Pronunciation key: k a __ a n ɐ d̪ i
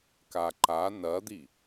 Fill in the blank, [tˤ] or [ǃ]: ǃ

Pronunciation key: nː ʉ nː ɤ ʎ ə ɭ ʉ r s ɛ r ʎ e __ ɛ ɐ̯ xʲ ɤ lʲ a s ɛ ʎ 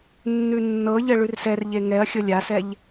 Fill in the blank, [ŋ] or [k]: ŋ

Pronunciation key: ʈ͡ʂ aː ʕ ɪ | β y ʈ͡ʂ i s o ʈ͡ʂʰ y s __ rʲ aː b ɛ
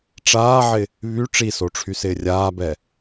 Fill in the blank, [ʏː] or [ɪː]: ɪː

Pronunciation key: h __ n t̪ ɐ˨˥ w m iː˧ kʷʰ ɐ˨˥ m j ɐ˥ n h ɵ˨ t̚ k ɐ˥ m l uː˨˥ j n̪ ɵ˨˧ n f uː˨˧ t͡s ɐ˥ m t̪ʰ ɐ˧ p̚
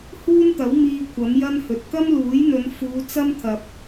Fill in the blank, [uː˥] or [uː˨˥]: uː˥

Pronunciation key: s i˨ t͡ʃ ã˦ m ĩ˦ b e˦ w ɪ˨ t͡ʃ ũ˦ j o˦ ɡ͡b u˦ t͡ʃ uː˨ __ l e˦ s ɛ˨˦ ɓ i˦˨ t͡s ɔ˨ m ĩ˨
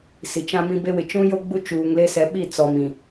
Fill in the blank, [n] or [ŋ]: ŋ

